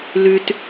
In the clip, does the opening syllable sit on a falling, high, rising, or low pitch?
low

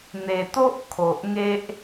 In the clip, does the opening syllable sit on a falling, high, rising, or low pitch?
low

